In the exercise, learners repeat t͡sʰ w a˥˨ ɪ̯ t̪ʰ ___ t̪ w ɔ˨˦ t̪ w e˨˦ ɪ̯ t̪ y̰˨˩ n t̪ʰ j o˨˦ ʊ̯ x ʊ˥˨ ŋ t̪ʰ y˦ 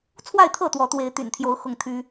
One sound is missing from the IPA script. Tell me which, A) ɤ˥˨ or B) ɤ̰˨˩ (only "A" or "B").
A